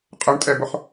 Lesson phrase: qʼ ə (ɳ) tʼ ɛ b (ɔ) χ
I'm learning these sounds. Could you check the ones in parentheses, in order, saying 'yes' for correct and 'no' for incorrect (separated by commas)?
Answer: yes, no